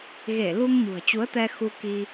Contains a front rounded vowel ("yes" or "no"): no